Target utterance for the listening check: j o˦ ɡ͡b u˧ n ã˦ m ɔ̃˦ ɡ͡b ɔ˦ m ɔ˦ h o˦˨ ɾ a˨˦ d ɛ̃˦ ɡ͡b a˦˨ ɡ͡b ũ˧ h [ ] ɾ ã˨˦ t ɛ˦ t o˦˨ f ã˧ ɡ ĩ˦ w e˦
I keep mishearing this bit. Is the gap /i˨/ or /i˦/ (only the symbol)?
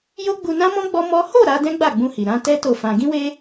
i˨